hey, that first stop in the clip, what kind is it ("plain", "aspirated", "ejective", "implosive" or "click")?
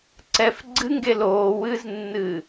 click